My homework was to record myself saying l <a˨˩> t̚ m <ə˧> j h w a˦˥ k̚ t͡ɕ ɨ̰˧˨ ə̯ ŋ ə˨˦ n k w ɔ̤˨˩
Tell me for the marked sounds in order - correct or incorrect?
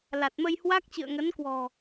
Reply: correct, correct

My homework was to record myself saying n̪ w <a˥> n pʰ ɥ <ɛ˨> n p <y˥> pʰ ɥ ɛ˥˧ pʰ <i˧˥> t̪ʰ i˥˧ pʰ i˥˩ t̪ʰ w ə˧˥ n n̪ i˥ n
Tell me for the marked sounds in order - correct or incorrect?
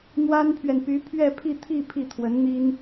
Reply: correct, correct, incorrect: y˧˥, incorrect: i˥˧

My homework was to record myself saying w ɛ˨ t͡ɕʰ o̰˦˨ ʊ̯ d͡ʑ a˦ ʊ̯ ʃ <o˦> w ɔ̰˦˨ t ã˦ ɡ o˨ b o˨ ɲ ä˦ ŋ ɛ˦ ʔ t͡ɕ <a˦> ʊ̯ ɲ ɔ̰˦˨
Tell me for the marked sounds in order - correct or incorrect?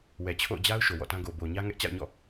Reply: incorrect: o˨, incorrect: a̰˦˨

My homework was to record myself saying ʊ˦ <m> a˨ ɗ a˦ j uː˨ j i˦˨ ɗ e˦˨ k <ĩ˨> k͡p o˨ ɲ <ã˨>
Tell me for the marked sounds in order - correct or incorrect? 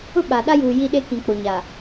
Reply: incorrect: ɓ, correct, incorrect: a˨

